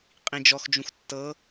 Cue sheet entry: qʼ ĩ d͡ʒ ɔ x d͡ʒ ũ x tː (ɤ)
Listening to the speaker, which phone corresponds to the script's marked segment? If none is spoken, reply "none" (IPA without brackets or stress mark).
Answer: ɤ